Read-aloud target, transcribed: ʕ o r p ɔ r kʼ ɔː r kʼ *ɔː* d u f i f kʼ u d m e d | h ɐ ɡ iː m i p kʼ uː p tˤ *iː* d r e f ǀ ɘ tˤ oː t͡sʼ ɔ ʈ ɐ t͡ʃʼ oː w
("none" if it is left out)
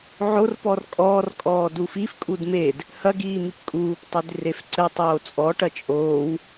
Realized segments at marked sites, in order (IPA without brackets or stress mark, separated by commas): ɔː, i